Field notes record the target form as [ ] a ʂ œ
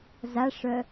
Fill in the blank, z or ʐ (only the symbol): z